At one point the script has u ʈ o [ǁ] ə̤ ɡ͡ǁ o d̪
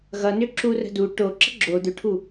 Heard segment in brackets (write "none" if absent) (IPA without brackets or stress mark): ǁ